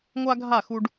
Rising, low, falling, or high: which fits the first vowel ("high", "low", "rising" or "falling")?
high